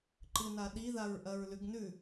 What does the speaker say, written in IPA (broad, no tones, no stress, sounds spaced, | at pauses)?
ǃ ɨ n a ɗ i ð a ɹ ʔ ɐ ɹ l ʉ ɡ n ʉ